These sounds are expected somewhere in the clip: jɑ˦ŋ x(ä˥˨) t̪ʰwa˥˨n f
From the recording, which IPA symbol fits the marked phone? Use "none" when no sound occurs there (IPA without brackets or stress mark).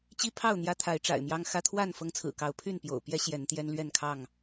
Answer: ä˦